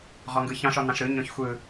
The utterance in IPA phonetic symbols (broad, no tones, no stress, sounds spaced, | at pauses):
ʁ ɔ ŋ ɡ ɯ ç ɑ̃ ʃ ɔ n ɑ̃ ʃ ɾ ɯ ɲ ɔ̃ ç xʷ ɯ